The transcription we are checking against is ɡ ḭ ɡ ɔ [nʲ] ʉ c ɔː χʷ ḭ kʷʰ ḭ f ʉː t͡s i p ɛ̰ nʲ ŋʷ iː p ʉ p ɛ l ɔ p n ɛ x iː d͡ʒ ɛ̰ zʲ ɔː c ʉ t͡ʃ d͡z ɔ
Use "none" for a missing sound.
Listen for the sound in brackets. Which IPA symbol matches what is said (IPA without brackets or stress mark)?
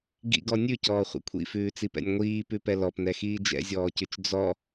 nʲ